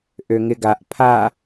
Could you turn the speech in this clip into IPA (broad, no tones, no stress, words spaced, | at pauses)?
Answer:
ʔøŋɪɡaʔ pʰa